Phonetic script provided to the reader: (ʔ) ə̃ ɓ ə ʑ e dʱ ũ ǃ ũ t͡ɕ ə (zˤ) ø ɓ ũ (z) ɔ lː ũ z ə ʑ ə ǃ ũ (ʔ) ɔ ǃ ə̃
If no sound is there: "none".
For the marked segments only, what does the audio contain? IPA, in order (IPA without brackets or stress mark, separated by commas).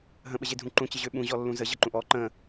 ɦ, ʑ, ʑ, ʔ